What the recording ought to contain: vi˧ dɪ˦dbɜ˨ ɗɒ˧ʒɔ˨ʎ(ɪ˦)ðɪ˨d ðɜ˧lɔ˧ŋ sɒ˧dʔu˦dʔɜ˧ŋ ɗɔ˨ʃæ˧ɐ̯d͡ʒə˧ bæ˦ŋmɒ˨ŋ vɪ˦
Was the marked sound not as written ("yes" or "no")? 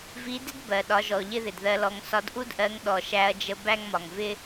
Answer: no